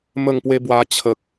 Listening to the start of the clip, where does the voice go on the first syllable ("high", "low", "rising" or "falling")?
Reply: falling